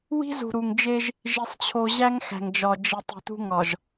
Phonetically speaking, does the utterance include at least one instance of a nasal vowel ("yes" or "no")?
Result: no